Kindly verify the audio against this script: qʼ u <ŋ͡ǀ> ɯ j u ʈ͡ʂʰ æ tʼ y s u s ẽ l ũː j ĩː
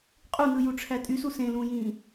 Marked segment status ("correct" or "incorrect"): incorrect